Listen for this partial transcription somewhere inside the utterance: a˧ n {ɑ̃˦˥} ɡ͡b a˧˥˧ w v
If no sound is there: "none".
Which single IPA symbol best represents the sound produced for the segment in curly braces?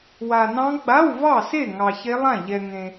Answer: ɑ̃˦˥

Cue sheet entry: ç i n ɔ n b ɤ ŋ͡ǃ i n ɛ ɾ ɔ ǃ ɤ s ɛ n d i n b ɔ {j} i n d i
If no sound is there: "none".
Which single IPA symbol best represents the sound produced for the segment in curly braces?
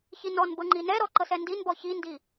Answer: ç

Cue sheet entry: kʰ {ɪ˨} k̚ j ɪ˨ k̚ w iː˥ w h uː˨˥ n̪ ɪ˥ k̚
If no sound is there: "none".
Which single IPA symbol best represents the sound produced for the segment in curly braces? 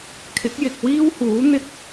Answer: ɪ˨˥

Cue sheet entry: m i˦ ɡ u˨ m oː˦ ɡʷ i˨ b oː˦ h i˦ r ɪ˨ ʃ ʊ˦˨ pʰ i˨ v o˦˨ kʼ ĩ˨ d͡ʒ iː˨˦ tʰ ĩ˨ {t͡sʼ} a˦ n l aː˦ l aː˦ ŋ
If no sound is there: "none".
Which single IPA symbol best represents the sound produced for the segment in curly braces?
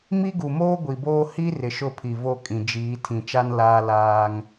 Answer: t͡ʃ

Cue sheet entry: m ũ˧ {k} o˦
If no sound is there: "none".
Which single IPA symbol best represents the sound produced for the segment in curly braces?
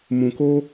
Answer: k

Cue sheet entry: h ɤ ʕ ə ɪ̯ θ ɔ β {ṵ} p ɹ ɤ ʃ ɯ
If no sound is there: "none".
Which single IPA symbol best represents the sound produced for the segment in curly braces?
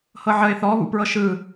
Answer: ṵ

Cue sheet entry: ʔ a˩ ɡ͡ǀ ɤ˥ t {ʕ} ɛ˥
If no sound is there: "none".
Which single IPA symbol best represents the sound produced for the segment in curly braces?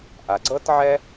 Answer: ʕ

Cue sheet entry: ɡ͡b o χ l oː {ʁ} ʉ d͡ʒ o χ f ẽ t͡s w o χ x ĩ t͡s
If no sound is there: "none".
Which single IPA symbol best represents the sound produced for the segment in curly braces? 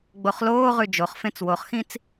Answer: ʁ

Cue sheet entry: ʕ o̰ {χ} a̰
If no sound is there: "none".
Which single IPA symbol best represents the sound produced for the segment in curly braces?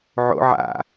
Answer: ʕ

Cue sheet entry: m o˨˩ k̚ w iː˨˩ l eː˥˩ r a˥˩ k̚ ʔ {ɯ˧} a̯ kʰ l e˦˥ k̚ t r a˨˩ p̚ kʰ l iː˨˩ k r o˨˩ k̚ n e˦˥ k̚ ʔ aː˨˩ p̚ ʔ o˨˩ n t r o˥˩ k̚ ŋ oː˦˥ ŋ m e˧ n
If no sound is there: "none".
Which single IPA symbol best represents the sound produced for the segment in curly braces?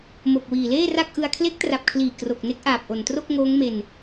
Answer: ɯ˧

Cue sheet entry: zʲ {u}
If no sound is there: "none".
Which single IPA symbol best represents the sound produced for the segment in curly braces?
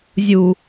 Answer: u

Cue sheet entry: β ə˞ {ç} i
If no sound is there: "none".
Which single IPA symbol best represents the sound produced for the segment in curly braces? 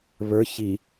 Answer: ç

